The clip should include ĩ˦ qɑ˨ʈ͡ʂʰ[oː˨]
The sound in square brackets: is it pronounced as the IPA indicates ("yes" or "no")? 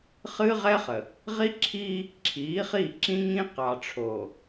yes